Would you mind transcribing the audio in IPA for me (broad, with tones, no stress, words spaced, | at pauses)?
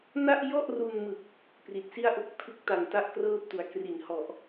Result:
na˥˩ʔjɔ˥˩ʔru˧nmɯ˨˩k̚ | pri˨˩t̚ si˥˩a̯ʔo˥˩k̚ tʰɯ˦˥k̚ta˨˩n ta˥˩ʔkrɤː˥˩p̚tu˩˦a̯ kri˩˦nhɔ˨˩ʔ